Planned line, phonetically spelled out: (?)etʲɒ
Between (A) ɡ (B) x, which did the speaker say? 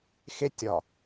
B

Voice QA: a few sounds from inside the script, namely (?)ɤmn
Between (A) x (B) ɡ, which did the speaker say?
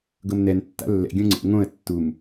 B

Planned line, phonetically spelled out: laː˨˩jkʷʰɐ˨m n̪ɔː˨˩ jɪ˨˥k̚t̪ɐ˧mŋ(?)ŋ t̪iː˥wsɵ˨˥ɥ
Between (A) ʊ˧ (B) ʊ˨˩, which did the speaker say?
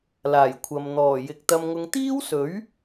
A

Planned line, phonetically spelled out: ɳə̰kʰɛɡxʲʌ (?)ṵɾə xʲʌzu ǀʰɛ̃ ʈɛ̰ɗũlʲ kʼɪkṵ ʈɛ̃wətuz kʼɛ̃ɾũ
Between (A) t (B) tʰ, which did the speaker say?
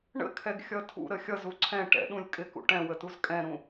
B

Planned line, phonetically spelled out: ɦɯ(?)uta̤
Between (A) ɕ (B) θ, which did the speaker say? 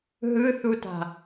B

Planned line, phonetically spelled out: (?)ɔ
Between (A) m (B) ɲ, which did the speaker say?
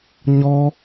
B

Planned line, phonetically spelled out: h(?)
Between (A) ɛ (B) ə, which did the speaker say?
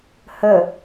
B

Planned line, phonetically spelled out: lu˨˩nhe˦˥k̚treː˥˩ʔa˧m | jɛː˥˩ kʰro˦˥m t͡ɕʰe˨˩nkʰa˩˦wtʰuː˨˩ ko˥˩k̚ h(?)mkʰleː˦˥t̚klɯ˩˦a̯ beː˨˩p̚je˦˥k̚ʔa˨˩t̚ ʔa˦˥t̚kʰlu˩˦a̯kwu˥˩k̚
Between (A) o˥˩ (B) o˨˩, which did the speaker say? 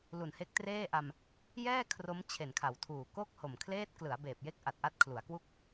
B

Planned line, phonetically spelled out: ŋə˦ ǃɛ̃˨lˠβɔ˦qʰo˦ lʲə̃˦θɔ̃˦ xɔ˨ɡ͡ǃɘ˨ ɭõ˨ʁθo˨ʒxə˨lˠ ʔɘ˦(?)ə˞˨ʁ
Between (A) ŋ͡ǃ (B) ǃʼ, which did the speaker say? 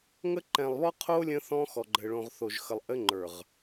A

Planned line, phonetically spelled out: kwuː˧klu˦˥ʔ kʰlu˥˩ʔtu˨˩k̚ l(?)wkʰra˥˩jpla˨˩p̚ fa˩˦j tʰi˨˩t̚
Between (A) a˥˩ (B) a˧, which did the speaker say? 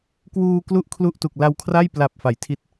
B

